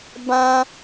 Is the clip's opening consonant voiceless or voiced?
voiced